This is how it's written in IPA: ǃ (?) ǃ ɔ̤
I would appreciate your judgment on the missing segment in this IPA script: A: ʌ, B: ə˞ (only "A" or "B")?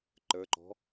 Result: B